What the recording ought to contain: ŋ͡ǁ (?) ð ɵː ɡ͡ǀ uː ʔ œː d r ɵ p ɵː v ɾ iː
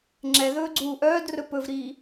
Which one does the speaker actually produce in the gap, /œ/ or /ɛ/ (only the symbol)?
ɛ